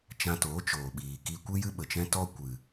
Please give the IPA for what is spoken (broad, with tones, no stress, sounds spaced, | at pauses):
t͡ʃ ã˧ t oː˨˦ t͡ʃ oː˨ ɓ iː˨ k iː˧ kʷ ɨ˦ j ɨ˦ ɓ ə˨ t͡ʃ ɛ̃˦ t ɔ˦ kʷ ɨ˨